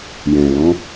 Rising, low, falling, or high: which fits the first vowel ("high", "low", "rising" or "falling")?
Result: low